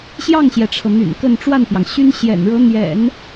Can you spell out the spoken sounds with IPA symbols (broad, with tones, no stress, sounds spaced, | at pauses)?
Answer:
ɕ j ɑ˥˩ ŋ ɕ j ɛ˩ ʈ͡ʂʰ ɤ˩ n̪ y̰˨˩ n k ə˥˧ n ʈ͡ʂ w a˥˩ n p j ɑ˩ ŋ ɕ y˥ n ɕ j ɛ̰˨˩ n ɻ ɤ˧˥ n̪ j ɛ̰˨˩˦ n